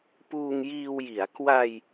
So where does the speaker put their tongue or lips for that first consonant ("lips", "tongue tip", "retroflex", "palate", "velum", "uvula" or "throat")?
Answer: lips